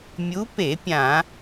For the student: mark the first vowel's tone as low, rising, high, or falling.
rising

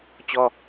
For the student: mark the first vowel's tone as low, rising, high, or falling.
high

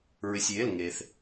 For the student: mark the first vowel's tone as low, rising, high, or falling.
low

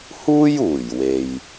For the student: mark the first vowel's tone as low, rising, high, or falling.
high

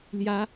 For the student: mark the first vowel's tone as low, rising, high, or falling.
rising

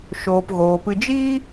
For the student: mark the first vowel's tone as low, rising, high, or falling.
low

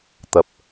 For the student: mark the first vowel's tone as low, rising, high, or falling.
low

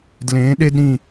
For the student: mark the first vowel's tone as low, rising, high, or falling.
rising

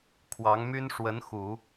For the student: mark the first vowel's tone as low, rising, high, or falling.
rising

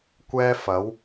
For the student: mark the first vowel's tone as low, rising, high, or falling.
high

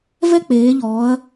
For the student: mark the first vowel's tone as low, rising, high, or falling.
high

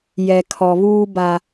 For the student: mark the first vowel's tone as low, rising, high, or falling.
low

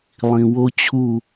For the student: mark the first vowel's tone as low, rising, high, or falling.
low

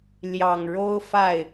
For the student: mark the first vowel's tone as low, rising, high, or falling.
low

